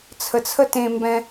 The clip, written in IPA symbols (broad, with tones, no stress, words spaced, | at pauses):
t͡sʰə˨t͡sʰə˦tẽ˧ mbɛ̃˧